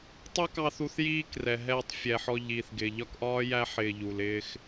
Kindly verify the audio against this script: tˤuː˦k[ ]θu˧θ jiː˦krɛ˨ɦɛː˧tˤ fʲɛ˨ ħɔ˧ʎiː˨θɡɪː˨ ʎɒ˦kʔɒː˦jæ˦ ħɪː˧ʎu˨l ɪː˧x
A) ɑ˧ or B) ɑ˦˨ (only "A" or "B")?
A